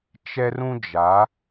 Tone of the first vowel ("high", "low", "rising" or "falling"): high